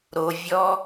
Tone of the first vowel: low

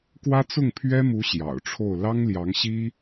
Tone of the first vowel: high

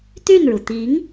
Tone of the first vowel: falling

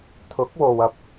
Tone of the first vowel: rising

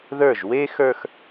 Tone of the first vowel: falling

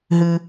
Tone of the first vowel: high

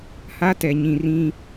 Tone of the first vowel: high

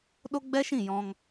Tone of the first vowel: high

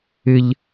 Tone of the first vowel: high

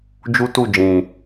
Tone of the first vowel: high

